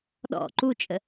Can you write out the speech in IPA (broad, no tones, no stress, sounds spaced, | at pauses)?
ɗ ɔ̰ ǃ u t͡ʃʼ ə